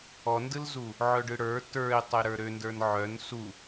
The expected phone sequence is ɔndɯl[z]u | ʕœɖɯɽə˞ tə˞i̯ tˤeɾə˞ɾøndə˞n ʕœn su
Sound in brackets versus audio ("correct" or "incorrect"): correct